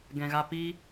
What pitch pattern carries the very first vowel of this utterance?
low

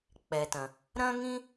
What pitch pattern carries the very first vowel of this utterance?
low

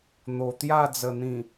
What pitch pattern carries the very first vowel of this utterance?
low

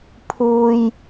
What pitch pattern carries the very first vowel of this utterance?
low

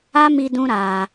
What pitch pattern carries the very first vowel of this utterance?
high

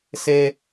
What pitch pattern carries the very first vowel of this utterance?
high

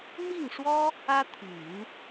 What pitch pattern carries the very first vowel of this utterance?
falling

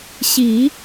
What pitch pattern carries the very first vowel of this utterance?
low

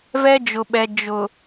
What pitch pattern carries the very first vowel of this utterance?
high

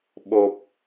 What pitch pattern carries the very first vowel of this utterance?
low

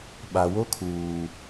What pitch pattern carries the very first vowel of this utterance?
low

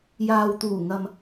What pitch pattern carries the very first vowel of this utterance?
low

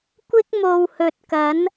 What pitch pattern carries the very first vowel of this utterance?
high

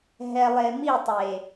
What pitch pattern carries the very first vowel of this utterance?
low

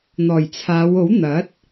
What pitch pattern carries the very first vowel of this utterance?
low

